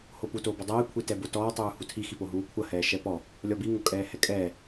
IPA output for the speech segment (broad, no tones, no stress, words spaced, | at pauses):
hopu toːbɔdˤɛː kʷʰitɛbotɔː tˤuːhutʰi xipoɦuːkʷʰɐ hɛːʃɛpɔ | lʲɔbi ŋokʼɛːhɛkʼɛː